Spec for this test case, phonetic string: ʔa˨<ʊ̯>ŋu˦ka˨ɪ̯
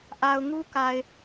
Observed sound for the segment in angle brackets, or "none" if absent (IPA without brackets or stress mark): ʊ̯